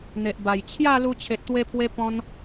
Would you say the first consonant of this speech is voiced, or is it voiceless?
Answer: voiced